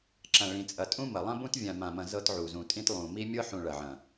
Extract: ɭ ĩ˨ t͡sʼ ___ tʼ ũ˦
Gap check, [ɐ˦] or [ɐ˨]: ɐ˨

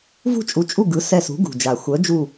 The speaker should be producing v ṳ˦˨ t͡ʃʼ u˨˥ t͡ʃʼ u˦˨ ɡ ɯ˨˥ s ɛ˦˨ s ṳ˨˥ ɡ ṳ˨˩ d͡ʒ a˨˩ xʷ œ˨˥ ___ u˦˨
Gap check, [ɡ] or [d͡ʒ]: d͡ʒ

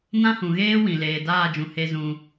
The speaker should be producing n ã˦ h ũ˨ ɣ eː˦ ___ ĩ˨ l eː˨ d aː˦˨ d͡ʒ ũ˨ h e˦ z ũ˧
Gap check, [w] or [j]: w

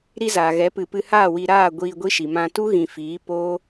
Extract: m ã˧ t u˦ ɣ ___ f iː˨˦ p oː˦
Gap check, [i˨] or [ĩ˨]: ĩ˨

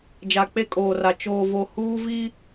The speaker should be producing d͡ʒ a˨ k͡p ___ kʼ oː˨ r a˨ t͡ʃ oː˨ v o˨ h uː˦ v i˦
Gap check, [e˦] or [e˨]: e˦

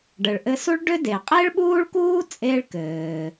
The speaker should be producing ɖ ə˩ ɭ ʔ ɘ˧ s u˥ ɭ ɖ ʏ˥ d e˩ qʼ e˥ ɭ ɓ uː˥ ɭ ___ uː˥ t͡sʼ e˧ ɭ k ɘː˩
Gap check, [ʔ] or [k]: k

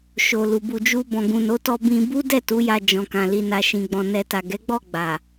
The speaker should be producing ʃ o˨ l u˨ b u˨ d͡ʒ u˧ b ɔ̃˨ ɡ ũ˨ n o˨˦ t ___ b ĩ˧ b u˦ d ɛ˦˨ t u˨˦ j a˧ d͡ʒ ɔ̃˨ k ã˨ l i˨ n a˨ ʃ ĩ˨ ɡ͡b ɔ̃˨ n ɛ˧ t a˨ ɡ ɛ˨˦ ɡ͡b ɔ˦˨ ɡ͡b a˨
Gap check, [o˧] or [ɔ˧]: ɔ˧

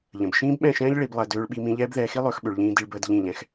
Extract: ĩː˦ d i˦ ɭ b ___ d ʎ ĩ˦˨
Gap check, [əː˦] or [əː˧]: əː˦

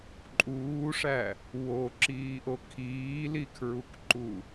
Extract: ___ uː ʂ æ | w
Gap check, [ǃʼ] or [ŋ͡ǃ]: ǃʼ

